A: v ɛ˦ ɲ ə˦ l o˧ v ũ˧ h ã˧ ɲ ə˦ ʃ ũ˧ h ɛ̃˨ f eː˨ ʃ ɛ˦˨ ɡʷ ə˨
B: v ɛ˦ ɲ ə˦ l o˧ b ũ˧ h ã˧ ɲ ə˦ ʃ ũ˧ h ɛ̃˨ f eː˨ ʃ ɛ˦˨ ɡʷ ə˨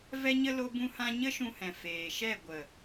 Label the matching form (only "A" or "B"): B